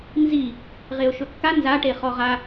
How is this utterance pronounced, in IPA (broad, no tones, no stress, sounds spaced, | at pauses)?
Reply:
n z i | ʁ e ʊ̯ ʃ ɵ kː a n z a ʈ e χ ɔ ʁ a